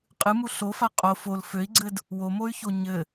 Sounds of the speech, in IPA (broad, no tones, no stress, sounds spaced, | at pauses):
qʼ ɨ m u ɬ o f a qʼ o f o l f ø i̯ ɡ͡ǀ ɘ d | w o m o y̯ ç o ɲ ɘ